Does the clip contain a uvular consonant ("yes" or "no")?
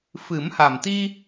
no